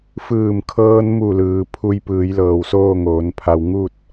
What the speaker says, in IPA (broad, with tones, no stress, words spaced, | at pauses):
fɯː˧˩mkʰɤː˧nmu˧˩lɯː˩ pʰu˧j pɯː˩˧jlɤː˩wsoː˥˨ ŋoː˩˧npʰa˧w ŋu˥˨t̚